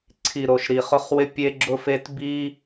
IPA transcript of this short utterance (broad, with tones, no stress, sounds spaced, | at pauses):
ǀʰ i˨ ɾ o˨ ʃ ɾ i˨ χ ʊ˦ χ w ɪ˦ pʲ e˦ ɡ͡ǁ ʊ˦ f e˦ t b i˦